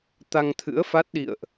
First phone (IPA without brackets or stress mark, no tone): t̪